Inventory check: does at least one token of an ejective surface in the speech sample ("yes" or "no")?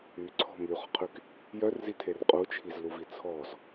yes